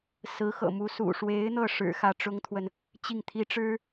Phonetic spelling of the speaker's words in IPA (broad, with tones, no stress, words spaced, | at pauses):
sɹ̩˧˥xɤ̰˨˩mu˧˥sṵ˨˩ ʂwe˧˥ɪ̯n̪ɤ˥˩ʂɻ̩˨˩ xä˥˩ʈ͡ʂʊ˥ŋt̪ʰwə˨n | t͡ɕi˥˩ŋt̪ʰi˥ʈ͡ʂɻ̩˥